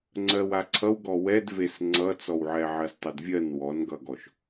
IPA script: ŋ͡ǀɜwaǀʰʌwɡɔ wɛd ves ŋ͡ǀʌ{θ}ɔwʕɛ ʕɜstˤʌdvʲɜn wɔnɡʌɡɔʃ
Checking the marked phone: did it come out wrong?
yes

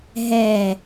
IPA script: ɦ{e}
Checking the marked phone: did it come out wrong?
yes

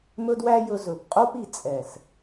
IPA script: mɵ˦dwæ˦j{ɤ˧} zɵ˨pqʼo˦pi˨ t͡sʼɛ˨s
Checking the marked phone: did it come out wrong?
yes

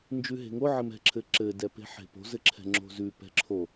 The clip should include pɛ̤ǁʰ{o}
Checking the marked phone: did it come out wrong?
no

